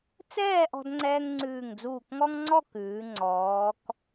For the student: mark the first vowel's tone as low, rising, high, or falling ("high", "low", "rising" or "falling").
falling